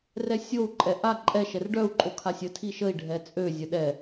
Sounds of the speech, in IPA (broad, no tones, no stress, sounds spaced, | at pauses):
r ɛ sʲ o u̯ ǃʼ ɛ ʔ a ǃʼ ɛ ʃ ɛ r ɖ œ u̯ ǃʼ o kʰ a sʲ ə tʰ i ʃ ə i̯ ɖʱ ɛ t͡sʼ ø zʲ ə ɗ ɛ